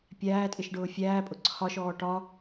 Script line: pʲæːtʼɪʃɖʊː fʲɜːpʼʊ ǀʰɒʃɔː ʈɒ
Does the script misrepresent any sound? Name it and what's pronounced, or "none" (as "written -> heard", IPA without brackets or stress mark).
ɜː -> æː